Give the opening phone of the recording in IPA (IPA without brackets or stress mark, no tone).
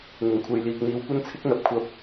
n̪